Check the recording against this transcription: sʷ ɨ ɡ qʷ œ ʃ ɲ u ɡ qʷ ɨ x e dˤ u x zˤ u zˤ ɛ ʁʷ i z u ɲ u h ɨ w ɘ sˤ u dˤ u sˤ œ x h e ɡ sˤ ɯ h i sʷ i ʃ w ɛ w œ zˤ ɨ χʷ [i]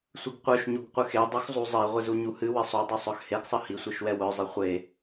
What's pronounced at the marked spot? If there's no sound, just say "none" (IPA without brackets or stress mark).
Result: e